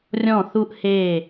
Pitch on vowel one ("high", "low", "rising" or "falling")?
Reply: falling